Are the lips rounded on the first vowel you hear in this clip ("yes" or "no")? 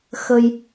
no